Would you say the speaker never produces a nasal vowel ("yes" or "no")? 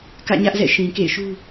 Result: no